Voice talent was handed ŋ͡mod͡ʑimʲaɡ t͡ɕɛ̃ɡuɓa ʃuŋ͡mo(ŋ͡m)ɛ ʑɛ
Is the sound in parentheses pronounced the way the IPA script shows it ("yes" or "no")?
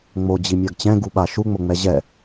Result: yes